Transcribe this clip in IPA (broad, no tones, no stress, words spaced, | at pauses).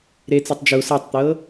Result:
ɾet͡sɯtˤ d͡ʒu sɤtˤt̪ɤ